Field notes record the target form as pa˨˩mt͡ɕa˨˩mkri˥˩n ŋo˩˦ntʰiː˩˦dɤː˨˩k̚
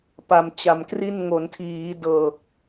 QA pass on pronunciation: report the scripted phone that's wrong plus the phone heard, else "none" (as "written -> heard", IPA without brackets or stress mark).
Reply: none